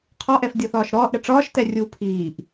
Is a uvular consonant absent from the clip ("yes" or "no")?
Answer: no